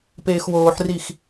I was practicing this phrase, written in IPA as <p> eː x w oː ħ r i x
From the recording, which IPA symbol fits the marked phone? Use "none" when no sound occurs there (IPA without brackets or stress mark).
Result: p